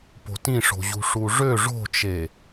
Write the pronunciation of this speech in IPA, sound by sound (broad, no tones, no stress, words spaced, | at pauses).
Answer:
po̤tĩʂo̤ʑṳ ʂuʐø ʐo̤t͡ʃe